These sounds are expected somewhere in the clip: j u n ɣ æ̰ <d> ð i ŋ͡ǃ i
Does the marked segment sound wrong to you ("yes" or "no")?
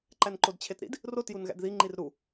no